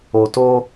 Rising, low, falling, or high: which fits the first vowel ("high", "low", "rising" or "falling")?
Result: low